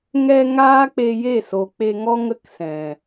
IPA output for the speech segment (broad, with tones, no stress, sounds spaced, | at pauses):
ŋ ɛ˧ ŋ aː˦ k͡p e˧ j e˦˨ s o˨ k͡p e˧ ŋ ɔ˦ ŋ ə˧ k s ɛ̃˨